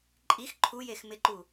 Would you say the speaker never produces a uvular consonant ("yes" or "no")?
yes